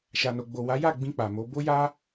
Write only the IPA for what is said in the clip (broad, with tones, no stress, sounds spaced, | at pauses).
ʃ a˨ n o˨ ɡ͡b o˨ w a˨˦ j a˦˨ ɡ͡b ĩ˧ k͡p a˨ m o˨˦ b o˦ j a˦